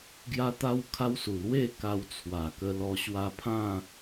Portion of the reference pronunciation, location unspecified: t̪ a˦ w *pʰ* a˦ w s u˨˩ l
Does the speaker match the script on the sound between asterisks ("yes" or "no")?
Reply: no